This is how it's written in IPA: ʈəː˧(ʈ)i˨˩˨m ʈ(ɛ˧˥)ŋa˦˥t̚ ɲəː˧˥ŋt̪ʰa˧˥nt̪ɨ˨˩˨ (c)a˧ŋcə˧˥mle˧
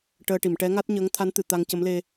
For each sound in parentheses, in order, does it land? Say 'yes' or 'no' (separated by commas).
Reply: yes, yes, no